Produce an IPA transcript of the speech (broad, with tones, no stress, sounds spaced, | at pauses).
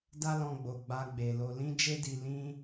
d a˦ l ɔ̃˧ ɡ͡b o˨ ɡ͡b a˧ ɡ͡b e˨ l o˧ l ĩ˦ d͡ʒ e˦ d i˧ l ĩ˦